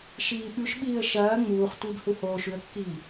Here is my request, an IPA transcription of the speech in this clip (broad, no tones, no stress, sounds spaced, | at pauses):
ʃ iː ɓ ʉ ʃ ɓ iː ə̯ ʃ ɐː ŋ͡m uː χ tʷ ɨː b h u h oː ʃ ʉ ə̯ kː iː